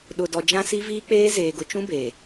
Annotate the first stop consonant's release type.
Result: implosive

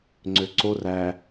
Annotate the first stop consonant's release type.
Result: click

